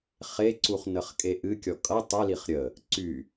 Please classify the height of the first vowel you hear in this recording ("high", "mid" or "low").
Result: mid